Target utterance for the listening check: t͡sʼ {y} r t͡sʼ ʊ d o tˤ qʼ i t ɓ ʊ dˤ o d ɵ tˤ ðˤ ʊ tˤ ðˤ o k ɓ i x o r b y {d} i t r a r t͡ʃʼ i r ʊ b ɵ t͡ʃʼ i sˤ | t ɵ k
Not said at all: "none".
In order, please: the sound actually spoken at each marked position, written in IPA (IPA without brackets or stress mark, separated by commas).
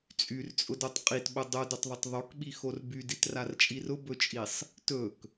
y, d